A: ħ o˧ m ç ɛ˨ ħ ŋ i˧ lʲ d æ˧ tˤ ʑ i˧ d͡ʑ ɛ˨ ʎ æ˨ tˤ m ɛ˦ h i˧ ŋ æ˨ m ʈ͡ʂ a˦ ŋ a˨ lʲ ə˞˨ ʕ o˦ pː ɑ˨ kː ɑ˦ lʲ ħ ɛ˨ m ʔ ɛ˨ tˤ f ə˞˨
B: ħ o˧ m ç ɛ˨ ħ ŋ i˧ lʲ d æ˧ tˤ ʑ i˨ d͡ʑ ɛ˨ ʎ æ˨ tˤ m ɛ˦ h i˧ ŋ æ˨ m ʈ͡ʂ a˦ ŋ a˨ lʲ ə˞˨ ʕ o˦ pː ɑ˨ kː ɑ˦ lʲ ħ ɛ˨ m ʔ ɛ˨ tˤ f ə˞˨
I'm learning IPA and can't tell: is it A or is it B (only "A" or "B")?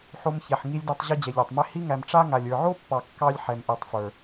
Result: A